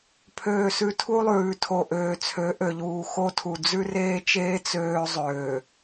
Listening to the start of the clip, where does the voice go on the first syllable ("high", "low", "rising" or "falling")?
low